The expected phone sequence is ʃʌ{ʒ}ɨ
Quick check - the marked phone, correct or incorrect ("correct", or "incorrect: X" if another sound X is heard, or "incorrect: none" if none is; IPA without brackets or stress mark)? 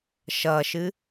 incorrect: ʃ